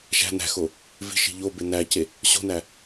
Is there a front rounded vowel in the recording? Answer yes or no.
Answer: no